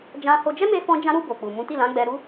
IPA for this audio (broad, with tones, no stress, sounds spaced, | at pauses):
d͡ʒ ã˧ h o˧ d͡ʒ ɛ˦ m e˧ f ɔ̃˧ d͡ʒ ã˧ ɾ u˧ b o˨ k͡p u˨ m ũ˨˦ t i˦˨ l ã˨˦ ɡ͡b ɛ˧ ɾ u˦